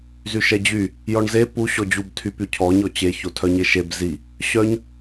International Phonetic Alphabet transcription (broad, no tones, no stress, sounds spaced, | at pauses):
z y ʃ ɛ d͡ʑ y | j ɔ ɳ z e p u ɕ ɔ d͡ʑ u b tʰ y p y cʰ ɔ ɲ ɔ t͡ɕ e ç o tʰ œ ɲ e ʃ e b z i | ɕ œ ɲ